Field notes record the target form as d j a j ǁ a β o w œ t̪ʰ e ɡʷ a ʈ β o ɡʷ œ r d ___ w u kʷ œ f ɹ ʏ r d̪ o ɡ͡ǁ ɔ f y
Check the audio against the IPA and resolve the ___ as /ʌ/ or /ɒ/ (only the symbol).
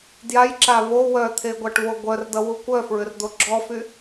ʌ